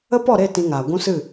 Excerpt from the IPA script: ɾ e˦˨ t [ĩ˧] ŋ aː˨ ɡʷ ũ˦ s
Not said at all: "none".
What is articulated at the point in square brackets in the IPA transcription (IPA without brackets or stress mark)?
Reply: ĩ˧